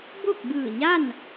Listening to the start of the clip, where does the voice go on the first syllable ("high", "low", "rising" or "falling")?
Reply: falling